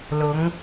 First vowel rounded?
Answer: yes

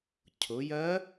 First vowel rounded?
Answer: yes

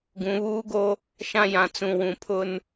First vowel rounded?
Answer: yes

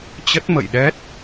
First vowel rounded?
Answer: no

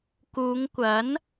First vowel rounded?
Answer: yes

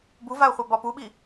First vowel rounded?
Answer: yes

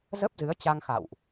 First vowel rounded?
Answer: no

